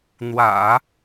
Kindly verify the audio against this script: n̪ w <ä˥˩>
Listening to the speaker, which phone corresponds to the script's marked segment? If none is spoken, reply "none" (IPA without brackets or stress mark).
ä̰˨˩˦